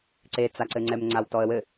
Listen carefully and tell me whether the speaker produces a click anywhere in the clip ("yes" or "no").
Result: yes